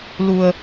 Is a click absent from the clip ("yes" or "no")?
yes